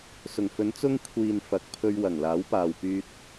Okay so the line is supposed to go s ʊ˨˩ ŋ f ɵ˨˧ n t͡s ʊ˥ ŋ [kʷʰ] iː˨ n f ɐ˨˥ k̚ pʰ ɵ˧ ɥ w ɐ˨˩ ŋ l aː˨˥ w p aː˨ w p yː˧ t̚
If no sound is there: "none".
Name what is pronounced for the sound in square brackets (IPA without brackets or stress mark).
kʷʰ